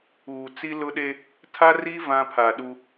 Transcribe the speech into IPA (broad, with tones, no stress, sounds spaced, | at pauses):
uː˨ t͡s i˦ l ʊ˦ ɗ e˦ | tʰ a˦ r i˦ v ã˦ pʰ a˨ ɗ u˦